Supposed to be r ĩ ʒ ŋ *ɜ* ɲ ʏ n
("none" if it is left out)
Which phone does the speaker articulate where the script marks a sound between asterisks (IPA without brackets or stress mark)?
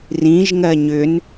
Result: ɜ